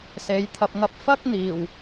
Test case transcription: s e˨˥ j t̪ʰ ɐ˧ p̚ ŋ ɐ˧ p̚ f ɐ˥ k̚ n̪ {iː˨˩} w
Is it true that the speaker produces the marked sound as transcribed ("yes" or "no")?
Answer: yes